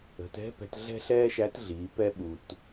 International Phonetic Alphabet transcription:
ə̤˩ t ɛ̤˧˥ p ɛ̤˩˧ t ɮ ɛ̤˥ ɬ ɛː˥ ʃ æ˧˥ t ɮ iː˩˧ p ɛ˧ ɓ u˩ t

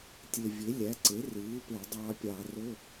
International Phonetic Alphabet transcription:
tʲ e˨˩ vʲ e˩˥ lʲ æ˩˥ ǀ e˩˥ r ɯː˩˥ p e˧˩˧ dˤ ɑː˧ pʲ ɑ˧˩˧ r o˧˥˧

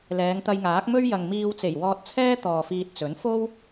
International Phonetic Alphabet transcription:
l ɛː˨˧ ŋ t̪ ɐ˧ j ŋ aː˨˥ k̚ m ɵ˥ ɥ j ɐ˨ ŋ m iː˧ w t͡s e˨˩ j w ɔː˧ t̚ t͡sʰ ɛː˥ t̪ ɔː˨ f iː˧ t̚ t͡s ɵ˨˥ n f o˥ w

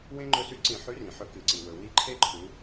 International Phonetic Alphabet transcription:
w ẽ˦ ŋ͡ǃ ɵ˦˨ s ʉ˦ ǀ ĩ˧˩˧ ħ ʉ˨˥ r ĩ˩ ħ ɵ˧˩˧ k ɨ˩ ǀ i˩ w ɵ˩ w i˦˨ ǃʰ e˦ ǃʰ u˩˧

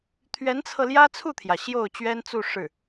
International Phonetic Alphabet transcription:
t̪ʰ ɥ ɛ˧˥ n t͡sʰ ɤ˧ l j ä˥ t͡sʰ u˥˩ t̪ʰ j ä˩ ɕ j o˥˩ ʊ̯ t͡ɕ ɥ ɛ˥ n t͡s u˥˧ ʂ ɻ̩˥˩

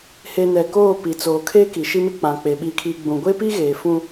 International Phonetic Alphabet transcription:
h e˨ n ɛ˨ k oː˦˨ p i˨ t͡s oː˨ kʰ e˦ k i˨ ʃ i˦ m ɪ˦ k͡p ã˨ k͡p e˨ ɓ i˨ kʰ i˨ ɡ͡b ũ˨ ɡʷ e˦ p i˦ ɣ eː˨ f ũ˦

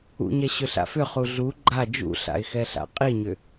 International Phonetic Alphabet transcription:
ṵ ɲ ɛ ɕ ʏ ɬ a̰ f ʏ χ u ɮ u ɡ͡ǃ a d͡ʒ ṵ ɬ a̰ ɪ̯ x ɛ ɬ a̰ qʼ i ɲ ʏ

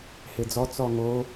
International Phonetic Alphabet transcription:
h e d͡z ɔ t͡s ɔ ŋ o

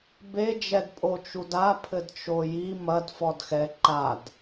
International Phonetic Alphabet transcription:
b e d͡ʒ ɛ d pʼ o t͡ʃ u d a pʰ ɘ d t͡ʃ o j i m ɐ d f ɔ d x ɛ ǃ a d

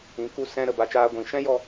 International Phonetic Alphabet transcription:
ĩ˨˦ k u˧ s ɛ̃˧ ɾ ə˨ b a˧ t͡ʃ aː˧ ɡʷ ĩ˨˦ ʃ ɛ̃˦ j ɔ˧

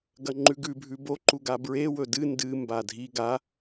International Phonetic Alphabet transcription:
ɡ ɐ ŋ͡ǃ ʉ ɡ ʉ bʱ ʉ b o ǃ u ɡ a b ɹ e w ɵ d ɨ n d ɨ m b a dʱ i ɡ a

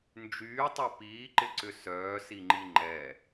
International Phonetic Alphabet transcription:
n d͡ʒ yː tˤ ɛ p iː ǃ ɪ ǀ ʏ s œː s i ŋ͡ǃ i ŋ͡ǃ ɛ

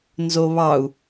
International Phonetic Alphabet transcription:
n z o β ɑ u̯

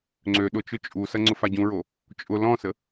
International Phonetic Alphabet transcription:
ŋ͡ǀ ø ɗ ʊ t͡ʃ ʊ t͡ʃʼ u s ɐ ŋ͡ǀ ʊ f a ɟ ũ ɹ o | t͡ʃʼ ʊ l ɔ̃ s ə

